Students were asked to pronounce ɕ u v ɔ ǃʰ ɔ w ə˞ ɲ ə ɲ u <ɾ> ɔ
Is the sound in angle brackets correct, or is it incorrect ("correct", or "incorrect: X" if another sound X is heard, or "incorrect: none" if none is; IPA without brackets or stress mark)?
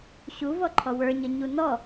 incorrect: n